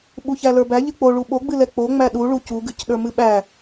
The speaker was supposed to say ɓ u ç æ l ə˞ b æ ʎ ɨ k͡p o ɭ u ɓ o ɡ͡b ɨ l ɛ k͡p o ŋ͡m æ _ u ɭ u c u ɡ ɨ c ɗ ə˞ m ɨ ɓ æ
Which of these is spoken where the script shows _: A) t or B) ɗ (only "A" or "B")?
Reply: B